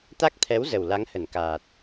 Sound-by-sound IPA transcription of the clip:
t̪ a˦˥ k̚ t̪ʰ ɛ˨˦ w z ə˨˩ w l a˨˦ ŋ h ə˧˩ n k aː˨˩ t̚

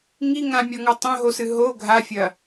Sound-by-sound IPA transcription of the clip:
ŋ i ŋ ã mʲ ɔ ŋ ɔ tˤ õ ɦ o s ɨ ɦ o ɡʱ a fʲ ɐ

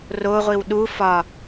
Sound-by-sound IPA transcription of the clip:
r o ʁʷ i w ɗ u f ɒ

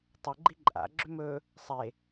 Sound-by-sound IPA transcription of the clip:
tˤ ʏ ɡ͡ǃ i ǃʼ a̰ ɡ͡ǁ ʏ m ɵ | sˤ e

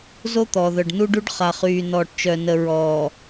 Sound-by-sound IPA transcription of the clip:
z o˦ t̪ ɔ˨ ð œ˨ ɖ n u˦ ɖ u˦ ɖ χ a˨ χ yː˨ n ɔː˨ ʈ t͡ʃ œ˨ n ə˨ ɹ ɔː˨

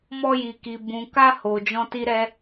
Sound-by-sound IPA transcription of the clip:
m ɔ˦ j i˧ k i˧ b ũ˧ k a˦ h o˧ d͡ʒ ɔ̃˧ t i˧ ɾ ɛ˧

